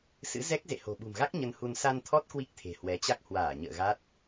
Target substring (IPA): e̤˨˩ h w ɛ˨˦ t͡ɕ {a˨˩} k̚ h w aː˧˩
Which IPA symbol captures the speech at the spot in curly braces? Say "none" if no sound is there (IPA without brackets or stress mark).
a˦˥